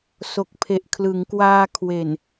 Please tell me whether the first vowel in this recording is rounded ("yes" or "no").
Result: yes